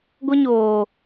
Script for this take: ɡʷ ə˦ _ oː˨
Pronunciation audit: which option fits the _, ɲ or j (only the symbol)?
ɲ